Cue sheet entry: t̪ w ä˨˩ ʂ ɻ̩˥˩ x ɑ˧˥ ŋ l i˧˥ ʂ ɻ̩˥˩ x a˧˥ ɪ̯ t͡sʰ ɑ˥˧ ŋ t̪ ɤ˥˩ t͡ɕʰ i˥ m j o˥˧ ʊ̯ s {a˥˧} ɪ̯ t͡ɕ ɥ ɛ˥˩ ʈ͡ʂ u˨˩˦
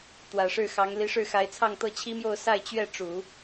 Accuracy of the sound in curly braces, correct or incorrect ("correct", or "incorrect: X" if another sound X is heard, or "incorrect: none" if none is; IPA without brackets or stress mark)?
correct